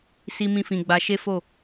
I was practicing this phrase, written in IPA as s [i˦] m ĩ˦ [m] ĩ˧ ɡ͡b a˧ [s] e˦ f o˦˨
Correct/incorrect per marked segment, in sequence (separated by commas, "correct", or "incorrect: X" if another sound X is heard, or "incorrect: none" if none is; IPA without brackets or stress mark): correct, incorrect: f, incorrect: ʃ